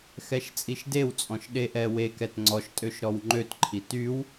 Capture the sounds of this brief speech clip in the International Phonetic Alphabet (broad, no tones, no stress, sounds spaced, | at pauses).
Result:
x ɛ ʃ t͡sʼ i ʃ d e w t͡sʼ ɔ̃ ʃ ɗ e ʔ ɛ w e k ɛ t ŋ͡ǀ ɔ ʃ tʼ ø ʃ ɾ ɔ w ŋ͡ǃ ø t ǃʰ i t y w